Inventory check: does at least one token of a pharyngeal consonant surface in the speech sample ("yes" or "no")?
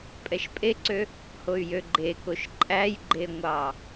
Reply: no